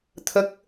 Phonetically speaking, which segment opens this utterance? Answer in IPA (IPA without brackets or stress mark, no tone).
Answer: t̪ʰ